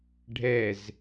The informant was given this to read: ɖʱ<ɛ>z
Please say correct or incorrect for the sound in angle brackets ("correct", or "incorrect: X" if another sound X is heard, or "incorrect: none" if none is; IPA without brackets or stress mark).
correct